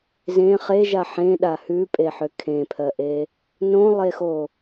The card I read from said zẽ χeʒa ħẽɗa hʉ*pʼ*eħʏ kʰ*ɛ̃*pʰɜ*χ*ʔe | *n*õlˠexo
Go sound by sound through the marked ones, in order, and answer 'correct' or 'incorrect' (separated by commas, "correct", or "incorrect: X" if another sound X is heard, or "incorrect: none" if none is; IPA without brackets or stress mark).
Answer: correct, incorrect: ẽ, incorrect: none, correct